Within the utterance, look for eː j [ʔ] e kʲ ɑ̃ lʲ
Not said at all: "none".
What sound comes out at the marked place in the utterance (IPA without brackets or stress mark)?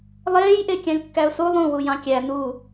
ʔ